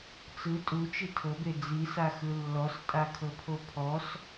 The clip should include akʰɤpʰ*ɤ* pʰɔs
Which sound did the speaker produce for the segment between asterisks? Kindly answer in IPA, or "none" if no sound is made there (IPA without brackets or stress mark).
o